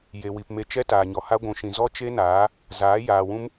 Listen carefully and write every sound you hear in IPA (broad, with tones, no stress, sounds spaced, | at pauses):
j e˨ w i˨ p m e˧ t͡ʃ ɛ˦ t aː˨ ɲ ɔ˨ h a˦ ɡʷ ũ˨ ʃ ĩ˨ z ɔ˦ t͡ʃ e˦ n aː˨˦ | z aː˨˦ j aː˨ w ũ˦ m